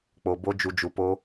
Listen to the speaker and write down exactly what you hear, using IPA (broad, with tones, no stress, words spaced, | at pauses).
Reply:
k͡po˧bo˦ d͡ʒu˧d͡ʒu˧po˦